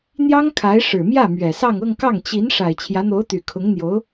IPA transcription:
n̪ j ɑ˥ ŋ kʰ a˧˥ ɪ̯ ʂ ɻ̩˨˩ m j ä˥˩ m ɥ ɛ˨˩ s ɑ˥˧ ŋ ɤ˥˧ ŋ k ɑ˥˩ ŋ t͡ɕ i˧˥ n ʂ a˨˩ ɪ̯ t͡ɕʰ j ä˧˥ n̪ o˧˥ ʊ̯ t̪ y˨˩ kʰ ʊ˧˥ ŋ n̪ j o˧˥ ʊ̯

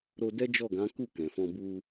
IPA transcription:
ɾ o˧ d ɛ˦ d͡ʒ ɔ˦˨ ɡ ã˨˦ k u˦˨ k ɛ̃˨ f ɔ̃˧ b u˧

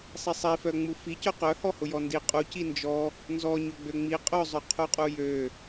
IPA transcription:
sˤ i sˤ i f œ ŋ͡m u f i c œ q œ h ɔ h ʊ j ɔ n d i qʼ u c i n d͡ʒ ɔ | n z ɔ ɲ ø ɡ͡b ø ŋ͡m i qʼ ʊ zˤ œ qʰ u qʼ u j ø

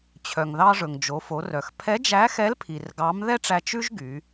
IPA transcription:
t͡ɕʰ œ˩ ŋ ð ɑ˧ ʐ ɵ˩ ŋ d͡ʒ o˩˧ f o˩˧ r œ˩ x pʰ ɛ˧˥ d͡ʒ æ˧˥ x ɛ˧˥ l pʰ i˩ r ɡ ɑ˧˥ m ð ɛ˥ ʈ͡ʂ æ˧ t͡ʃ ʉ˥ ʒ ɡ y˩˧

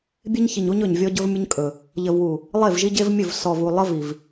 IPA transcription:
bʲ e˦ ɲ ç i˨ ɲ u˦ ɲ ɵ˨ ɲ vʲ ɔ˦ ɟ ɵ˦ v mʲ ə˦ ɲ kʼ ɵ˨ | ʎ ə˨ v w u˨ | lˠ e˦˨ v ʒ i˦ ɟ e˦ v mʲ ɵ˦˨ v s ɔ˨ v u˨ lˠ ə˦ v i˨ v

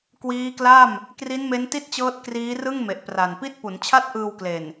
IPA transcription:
k w iː˦˥ k l a˥˩ m | k r i˦˥ n m e˦˥ n t i˥˩ t̚ t͡ɕ ɤː˦˥ t̚ k r iː˦˥ r ɯ˥˩ ŋ m e˨˩ ʔ p r a˨˩ n p i˥˩ t̚ p u˩˦ n t͡ɕʰ a˥˩ t̚ ʔ ɯː˧ w k l e˨˩ n

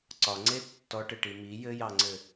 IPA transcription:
ǀ ɒ ŋ͡ǀ e tː ɔ ʈ ɘ ʈ i m i j ɘ j ɑ ŋ͡ǀ ɘ

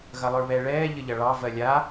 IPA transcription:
ɣ ɐ lˠ ə˞ β ɛ ɭ ɛː ʎ ə ʎ ɐ ɭ ɑ v ɜ lʲ a

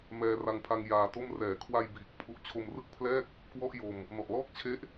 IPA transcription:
m ɛː˧ r a˧ ŋ pʰ a˧ ŋ j aː˧ t o˥˩ m r ɛː˩˦ kʰ w a˧ j b iː˨˩ k̚ pʰ u˦˥ ʔ t͡ɕʰ o˧ m r ɯ˥˩ k̚ pʰ l ɛː˥˩ k̚ | k w ɔ˥˩ ʔ j o˧ m | n ɔ˨˩ ʔ l ɔː˥˩ k̚ t͡ɕʰ e˦˥ ʔ

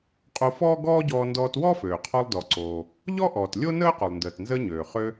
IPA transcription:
qʼ o˧ f ɔː˥ ɡ ɔː˥ ɟ ɔː˧ n d ɔː˧ t w ɔ˥ f øː˩ qʰ ɔ˧ lˠ d ɔ˩ ǀ oː˩ | ʎ ɔ˥ ʔ ɔː˩ t lʲ o˥ n əː˥ q ø˩ lˠ n d əː˩ t n z əː˧ ɲ øː˩ χ ø˧

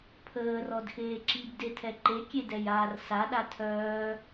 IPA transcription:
pʰ əː r ɔ d x eː ǁ i b d e tʰ ɛ ǃ e kʲ e d ɛ j aː r s a ɗ a tʰ œː

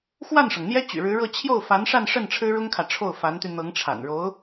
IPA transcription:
x w a˥˩ n ʂ ɤ˩ ŋ n̪ j ɛ˥ t͡ɕ y̰˨˩ ɻ ɻ̩˧˥ ɻ ɤ˥˧ t͡ɕʰ j o˥˩ ʊ̯ f a˧˥ n ʂ a˥˧ n ʂ ə˥˩ n ʈ͡ʂʰ ɻ̩˥ ɻ ʊ˥ ŋ kʰ ä˨ ʈ͡ʂʰ o˥˩ ʊ̯ f a˧˥ n t̪ y˧ n̪ ɤ˧˥ ŋ ʈ͡ʂʰ a̰˨˩ n ɻ o˧˥ ʊ̯

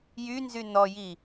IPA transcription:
j y n z y n ɔ j i

